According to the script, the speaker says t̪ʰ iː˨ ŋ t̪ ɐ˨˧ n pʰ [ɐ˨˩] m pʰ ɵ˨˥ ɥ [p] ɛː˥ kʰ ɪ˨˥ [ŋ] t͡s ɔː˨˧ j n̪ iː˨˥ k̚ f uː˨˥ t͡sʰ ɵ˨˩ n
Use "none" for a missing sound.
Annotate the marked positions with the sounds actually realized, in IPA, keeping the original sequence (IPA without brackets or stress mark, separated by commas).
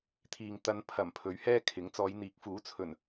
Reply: ɐ˨˩, h, ŋ